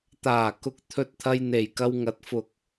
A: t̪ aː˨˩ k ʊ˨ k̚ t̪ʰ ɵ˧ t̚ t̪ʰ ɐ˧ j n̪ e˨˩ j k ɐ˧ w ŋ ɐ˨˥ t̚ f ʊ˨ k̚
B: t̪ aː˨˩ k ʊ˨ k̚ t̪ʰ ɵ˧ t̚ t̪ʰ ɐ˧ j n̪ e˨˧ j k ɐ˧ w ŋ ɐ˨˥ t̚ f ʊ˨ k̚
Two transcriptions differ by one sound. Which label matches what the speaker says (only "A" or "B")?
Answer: A